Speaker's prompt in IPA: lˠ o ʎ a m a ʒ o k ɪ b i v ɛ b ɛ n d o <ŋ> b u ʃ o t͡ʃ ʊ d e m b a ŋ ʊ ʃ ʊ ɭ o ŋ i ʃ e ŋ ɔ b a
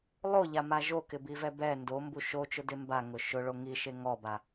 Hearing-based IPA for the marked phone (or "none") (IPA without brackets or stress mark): m